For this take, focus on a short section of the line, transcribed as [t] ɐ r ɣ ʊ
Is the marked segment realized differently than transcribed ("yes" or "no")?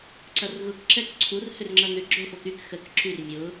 yes